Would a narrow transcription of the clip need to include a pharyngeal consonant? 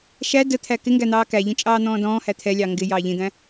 no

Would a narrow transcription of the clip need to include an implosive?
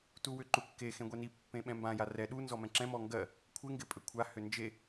yes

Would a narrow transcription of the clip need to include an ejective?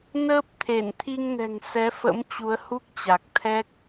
no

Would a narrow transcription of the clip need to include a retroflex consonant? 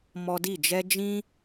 no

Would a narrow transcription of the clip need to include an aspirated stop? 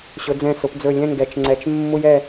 no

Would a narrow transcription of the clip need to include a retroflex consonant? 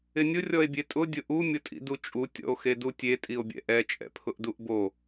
no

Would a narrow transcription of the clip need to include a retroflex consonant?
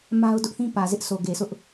no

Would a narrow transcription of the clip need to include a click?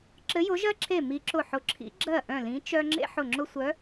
yes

